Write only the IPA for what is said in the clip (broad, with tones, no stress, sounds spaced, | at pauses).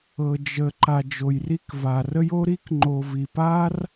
ɤ˧ d͡ʒ ə˧ ǃ a˧ d͡ʒ o˧ j r i˥ k v a˧ r ə˥ j o˥ ɾ i˥ k ŋ͡ǃ o˧ v i˧ p a˥ r